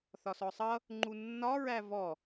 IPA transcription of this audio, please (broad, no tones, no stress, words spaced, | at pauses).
θɒsɔsˤʌ | ŋ͡ǃunːɒ ɹævɔ